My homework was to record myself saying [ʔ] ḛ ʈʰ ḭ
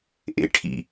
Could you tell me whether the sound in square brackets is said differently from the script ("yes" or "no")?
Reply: no